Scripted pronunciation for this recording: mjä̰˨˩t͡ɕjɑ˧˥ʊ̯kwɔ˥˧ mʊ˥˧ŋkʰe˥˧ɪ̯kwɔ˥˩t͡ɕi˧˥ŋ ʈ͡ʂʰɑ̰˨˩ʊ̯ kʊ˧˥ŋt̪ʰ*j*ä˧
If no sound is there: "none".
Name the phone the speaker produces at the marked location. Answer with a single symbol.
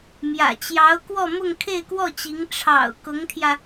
j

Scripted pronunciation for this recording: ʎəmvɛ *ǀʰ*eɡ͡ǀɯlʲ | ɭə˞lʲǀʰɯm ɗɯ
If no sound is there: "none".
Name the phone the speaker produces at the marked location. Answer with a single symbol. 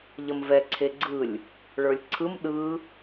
ǀʰ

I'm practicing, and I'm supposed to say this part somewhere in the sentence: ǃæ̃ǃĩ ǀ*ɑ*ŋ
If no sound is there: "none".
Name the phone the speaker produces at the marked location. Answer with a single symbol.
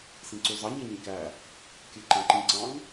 ɑ̃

